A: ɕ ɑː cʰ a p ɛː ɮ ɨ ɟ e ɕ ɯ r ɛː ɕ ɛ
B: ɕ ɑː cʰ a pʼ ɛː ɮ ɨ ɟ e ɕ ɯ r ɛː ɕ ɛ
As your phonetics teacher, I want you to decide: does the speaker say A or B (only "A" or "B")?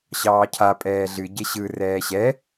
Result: B